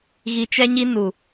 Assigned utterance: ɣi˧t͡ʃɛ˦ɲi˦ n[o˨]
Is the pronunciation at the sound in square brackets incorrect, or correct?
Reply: incorrect